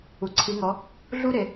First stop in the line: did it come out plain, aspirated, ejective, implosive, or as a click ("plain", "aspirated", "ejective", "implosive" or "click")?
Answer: click